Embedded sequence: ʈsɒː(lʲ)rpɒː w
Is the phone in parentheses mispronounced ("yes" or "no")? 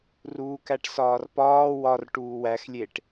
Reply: yes